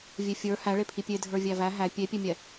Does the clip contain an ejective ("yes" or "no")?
no